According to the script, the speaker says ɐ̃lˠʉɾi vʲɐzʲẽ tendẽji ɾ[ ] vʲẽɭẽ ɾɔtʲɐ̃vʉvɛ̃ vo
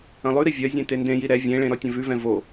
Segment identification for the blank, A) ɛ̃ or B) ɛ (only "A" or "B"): B